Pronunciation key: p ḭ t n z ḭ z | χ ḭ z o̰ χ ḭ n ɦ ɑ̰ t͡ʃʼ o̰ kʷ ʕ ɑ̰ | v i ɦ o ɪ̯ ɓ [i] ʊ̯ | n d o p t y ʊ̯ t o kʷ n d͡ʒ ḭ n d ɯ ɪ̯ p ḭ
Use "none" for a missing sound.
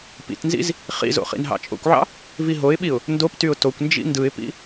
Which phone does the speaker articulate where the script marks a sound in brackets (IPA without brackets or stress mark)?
i